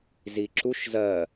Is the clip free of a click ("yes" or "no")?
no